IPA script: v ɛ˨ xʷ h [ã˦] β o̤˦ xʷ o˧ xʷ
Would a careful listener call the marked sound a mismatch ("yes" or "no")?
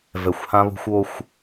no